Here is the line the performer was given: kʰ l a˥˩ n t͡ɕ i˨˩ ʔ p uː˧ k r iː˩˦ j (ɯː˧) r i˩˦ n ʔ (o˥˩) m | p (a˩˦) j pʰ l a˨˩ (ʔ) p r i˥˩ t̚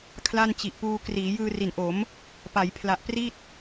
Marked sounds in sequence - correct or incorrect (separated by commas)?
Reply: correct, incorrect, correct, correct